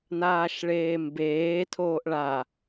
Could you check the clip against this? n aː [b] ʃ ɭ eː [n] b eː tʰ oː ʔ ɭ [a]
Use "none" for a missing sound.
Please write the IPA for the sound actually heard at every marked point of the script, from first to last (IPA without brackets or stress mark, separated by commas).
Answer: none, m, a